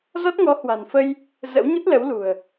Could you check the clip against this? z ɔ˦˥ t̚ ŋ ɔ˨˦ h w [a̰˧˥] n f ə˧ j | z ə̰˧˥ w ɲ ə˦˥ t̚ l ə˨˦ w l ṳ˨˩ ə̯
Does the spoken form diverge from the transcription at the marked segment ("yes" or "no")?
yes